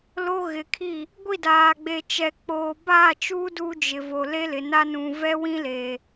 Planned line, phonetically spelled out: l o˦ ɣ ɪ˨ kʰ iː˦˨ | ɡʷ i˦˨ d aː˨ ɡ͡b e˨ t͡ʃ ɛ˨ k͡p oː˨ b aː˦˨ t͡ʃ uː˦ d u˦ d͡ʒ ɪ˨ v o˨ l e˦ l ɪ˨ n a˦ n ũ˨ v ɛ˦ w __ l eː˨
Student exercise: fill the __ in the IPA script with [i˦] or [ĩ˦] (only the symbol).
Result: ĩ˦